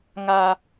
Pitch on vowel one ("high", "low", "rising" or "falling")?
high